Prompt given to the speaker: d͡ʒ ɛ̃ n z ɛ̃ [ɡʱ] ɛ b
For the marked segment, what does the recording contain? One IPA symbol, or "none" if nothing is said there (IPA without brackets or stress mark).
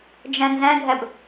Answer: ɡʱ